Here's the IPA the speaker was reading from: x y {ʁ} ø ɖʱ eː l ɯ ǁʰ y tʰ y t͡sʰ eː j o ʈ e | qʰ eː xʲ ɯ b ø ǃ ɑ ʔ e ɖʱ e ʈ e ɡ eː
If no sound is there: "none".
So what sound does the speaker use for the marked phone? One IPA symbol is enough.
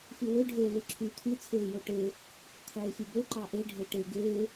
w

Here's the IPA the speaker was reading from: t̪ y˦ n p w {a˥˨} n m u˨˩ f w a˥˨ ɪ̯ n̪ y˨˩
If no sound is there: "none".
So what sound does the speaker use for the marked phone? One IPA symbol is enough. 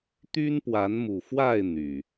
a˨˦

